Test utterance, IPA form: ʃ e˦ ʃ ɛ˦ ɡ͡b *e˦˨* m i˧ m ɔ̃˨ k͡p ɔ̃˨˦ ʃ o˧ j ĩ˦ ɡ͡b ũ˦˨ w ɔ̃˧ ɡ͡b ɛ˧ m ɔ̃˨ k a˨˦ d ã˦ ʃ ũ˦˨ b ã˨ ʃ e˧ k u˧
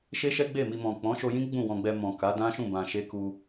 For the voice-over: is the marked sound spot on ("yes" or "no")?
yes